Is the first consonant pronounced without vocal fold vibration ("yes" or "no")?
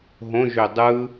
no